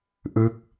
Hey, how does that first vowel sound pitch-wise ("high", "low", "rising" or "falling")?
falling